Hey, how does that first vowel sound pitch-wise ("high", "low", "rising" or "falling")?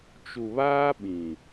low